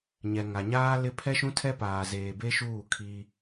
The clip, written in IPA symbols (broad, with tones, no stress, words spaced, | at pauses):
ɲɛ˨ŋa˨ɲaː˦lɪ˦ pʰɛ˦ʃũ˦tʰɛ˦paː˨ zeː˨be˦ʃuː˦˨ kʰi˦